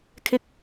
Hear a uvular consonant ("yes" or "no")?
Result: no